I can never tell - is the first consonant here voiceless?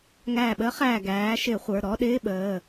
no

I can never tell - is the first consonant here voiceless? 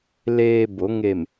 no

